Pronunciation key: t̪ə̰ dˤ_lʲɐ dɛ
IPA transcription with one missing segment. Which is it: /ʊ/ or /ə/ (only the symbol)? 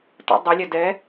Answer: ə